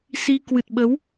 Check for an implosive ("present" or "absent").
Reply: present